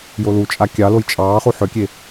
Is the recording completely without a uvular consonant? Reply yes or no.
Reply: no